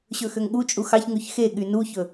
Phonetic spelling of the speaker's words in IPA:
ɕ ɵ x ø ŋ ɠ u t͡ʃʼ u x ɑ ç ŋ ʉ ç x e ɠ y n u ç ɵ

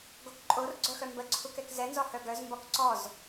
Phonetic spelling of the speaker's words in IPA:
ɡ o k ǃʼ o r ɡ͡ǀ œ x œ m b ə ǀʰ u k ɛ k z ɛ n z ɔ h œ ɡ œ z m b ɔ k ǀ ɔ z

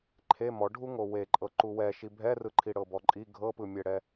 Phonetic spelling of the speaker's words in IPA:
ǃʰ e m ɔ ɖʱ u ŋ o w e ǃʼ ɤ ǃ u w ɛ ʃ i bʱ ɛ r ɯ ǃʰ i ɽ ɤ b ɔ ǃʼ i ɡʱ ɤ p ɯ mʲ ɛ ɽ ɛ

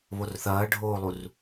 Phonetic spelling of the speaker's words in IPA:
β o r θ ɐː ɖʱ oː lˠ u r

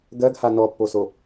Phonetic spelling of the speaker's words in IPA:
ɡ ɜ ɡ h a n ɔ pː o s o

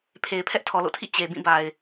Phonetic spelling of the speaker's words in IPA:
pʰ e˨ ɪ̯ pʰ ɛ˦ ʔ tʰ ɔ˨ l o̰˦˨ tʰ ḭ˦˨ t͡ɕ e˨ b ĩ˦˨ b a˨ ɪ̯

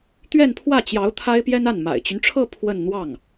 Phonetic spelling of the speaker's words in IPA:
t̪ ɥ ɛ˥˧ n pʰ w ä˥˩ t͡ɕ j ɑ˧˥ ʊ̯ t̪ʰ a˥ ɪ̯ p j ɛ˥ n a˥˩ n m a̰˨˩ ɪ̯ t͡ɕ y˦ n ʈ͡ʂʰ ɤ˥˧ pʰ w ə˥˧ n n̪ w ɑ˥˩ ŋ

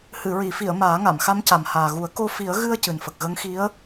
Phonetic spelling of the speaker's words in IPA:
h ɨ˨˩˨ ɹ i˨˩˨ f i˨˩˨ ə̯ m aː˨˩˦ ŋ a˨˩˨ m x a˧˥ m c a˨˩ m h aː˨˩ ɣ u˨˩˦ ə̯ k o˧ f i˨˩˦ ə̯ ɣ ɨ˧ ə̯ c ɨ˨˩ n f ə˨˩ k̚ ɣ ə˧˥ ŋ x i˧˥ ə̯

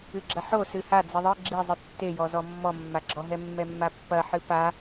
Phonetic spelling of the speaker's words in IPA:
ɨ ɡ͡ǁ ɐ ħ o s ɨ h a d͡z i ðˤ ɨ ɡ͡ǁ i zˤ ɨ tː e j ɔ z ɔ mː ɔ mː a ɡ͡ǁ ɔ ɦ ɛ mː ɛ mː a pː ɐ ħ ɨ p a

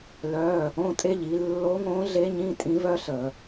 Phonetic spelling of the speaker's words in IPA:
l œ˧˥˧ | õ˧˥˧ tʼ e˥ ʎ i˩˧ lː o˧˥ ŋ õ˧˥ ɮ e˧˥ ɲ ĩ˧˥˧ tʼ ĩ˧˥ v œ˥ ɬ ə˧˩˧

